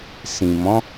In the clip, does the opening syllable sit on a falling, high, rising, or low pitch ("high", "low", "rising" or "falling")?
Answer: low